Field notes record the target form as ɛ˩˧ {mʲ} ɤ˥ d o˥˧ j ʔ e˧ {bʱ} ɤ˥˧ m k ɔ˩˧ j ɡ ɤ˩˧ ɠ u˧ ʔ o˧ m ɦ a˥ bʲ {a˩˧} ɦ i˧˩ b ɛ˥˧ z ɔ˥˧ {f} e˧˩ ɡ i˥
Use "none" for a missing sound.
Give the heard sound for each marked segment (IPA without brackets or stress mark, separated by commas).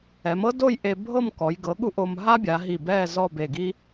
m, bʱ, a˩˧, b